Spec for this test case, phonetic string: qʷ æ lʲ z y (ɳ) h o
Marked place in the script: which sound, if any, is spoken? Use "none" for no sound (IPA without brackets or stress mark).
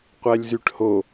ʈ